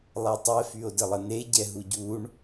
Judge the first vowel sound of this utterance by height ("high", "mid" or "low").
mid